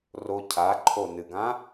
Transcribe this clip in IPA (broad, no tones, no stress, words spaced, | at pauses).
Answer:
ro cʰaǃʰo nɨɡã